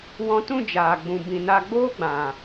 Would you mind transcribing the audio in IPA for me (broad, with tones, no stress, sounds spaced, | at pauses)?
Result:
w ɔ̃˧ t ũ˦˨ d͡ʒ aː˨ ɡ͡b ũ˨ b ĩ˨ n a˧ ɡ͡b oː˦ ɡ͡b ã˨